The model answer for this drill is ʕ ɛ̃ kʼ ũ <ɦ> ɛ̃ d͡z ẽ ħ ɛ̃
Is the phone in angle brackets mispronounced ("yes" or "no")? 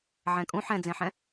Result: yes